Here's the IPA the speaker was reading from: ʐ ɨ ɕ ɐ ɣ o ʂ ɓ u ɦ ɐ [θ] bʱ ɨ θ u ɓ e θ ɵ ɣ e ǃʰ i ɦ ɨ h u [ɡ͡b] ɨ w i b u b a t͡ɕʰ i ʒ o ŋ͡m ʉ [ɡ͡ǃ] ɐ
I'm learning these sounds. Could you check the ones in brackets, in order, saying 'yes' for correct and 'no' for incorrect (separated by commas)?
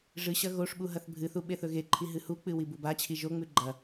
yes, no, yes